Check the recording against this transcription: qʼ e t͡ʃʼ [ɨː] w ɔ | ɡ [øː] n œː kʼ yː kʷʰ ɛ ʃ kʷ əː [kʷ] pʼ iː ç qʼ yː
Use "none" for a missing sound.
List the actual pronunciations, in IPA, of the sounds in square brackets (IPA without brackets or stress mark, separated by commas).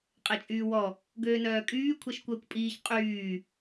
yː, øː, kʷ